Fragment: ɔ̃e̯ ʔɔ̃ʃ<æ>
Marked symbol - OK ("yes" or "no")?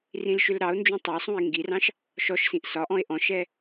no